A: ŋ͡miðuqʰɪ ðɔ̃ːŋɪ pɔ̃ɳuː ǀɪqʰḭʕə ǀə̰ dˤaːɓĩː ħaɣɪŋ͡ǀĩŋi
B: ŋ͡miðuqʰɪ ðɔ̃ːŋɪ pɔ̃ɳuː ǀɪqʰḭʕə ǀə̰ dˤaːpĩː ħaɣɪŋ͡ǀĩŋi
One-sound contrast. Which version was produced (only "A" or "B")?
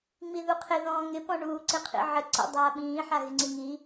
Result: A